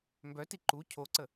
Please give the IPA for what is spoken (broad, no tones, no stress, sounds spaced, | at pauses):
m b œ t i ǃ u cʰ o ǀ ə